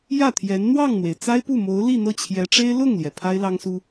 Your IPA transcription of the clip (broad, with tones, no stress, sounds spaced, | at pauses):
j ä˥˩ t̪ʰ j ɛ˧˥ n n̪ w ɑ˥˩ ŋ n̪ w e˩ ɪ̯ t͡s a˥ ɪ̯ p u˥˩ m o˧˥ ʊ̯ l i˥˧ n̪ ɤ˥˩ t͡ɕʰ j ɛ˧˥ ʈ͡ʂ e˥ ɪ̯ l ʊ˥˩ ŋ l j ɛ˩ pʰ a˥ ɪ̯ l ɑ˥ ŋ s u˥